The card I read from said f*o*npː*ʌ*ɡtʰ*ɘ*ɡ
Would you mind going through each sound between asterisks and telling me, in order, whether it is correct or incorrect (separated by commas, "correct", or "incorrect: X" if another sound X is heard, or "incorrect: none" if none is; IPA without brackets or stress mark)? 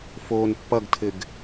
incorrect: oː, correct, correct